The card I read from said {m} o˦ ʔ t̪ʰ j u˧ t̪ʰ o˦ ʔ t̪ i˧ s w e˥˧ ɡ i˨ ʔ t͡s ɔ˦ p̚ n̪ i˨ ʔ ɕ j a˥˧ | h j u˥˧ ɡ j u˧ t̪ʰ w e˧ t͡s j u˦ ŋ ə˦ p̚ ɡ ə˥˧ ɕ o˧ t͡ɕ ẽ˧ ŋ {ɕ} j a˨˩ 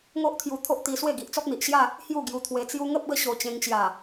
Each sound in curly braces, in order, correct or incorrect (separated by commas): incorrect, incorrect